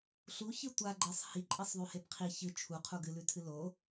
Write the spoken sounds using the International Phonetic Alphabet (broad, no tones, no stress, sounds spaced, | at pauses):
ɬ u ç ɨ tʷ a ɡ͡ǃ e sˤ h i ǃʼ i sˤ ðˤ ʉ h e b qʰ i ç ɨ t͡ʃʰ u qʰ u ɡ ɨ l ʉ tʰ ɨ l o